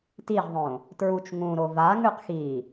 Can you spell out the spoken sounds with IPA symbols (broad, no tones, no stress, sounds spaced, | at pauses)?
t i ʁ ðˤ õ | t ɹ u t͡ʃ ŋ ũ ɾ o v a ŋ ʉ q x i